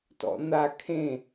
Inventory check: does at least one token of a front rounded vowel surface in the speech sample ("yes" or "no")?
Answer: no